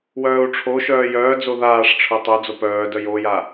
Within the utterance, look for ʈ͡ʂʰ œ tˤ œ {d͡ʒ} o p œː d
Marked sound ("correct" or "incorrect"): incorrect